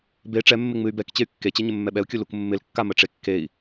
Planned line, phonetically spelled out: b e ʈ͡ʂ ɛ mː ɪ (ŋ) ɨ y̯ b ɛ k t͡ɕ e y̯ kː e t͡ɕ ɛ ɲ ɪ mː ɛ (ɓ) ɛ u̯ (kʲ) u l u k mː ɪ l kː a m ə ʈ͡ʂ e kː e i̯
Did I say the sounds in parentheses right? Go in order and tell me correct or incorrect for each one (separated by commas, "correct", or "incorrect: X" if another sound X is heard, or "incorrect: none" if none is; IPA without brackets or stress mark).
incorrect: ŋ͡m, correct, correct